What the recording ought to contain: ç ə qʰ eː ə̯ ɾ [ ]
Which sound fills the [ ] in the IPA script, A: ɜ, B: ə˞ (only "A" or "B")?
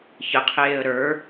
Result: B